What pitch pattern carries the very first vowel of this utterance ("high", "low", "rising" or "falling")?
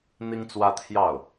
high